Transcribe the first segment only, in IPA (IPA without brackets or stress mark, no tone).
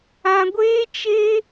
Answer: ã